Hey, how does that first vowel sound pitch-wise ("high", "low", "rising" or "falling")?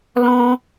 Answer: high